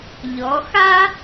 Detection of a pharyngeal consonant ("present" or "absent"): absent